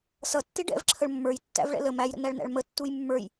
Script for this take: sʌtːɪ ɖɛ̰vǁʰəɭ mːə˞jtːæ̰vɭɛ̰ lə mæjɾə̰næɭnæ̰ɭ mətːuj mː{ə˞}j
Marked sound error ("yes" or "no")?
no